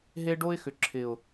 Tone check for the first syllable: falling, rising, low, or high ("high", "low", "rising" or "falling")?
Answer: high